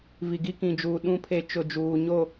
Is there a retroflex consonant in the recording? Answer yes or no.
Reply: no